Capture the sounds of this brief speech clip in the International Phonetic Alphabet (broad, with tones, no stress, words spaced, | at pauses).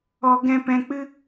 ɔ˨ ɡɛ̃˧pɛ̃˧k͡pɨ˦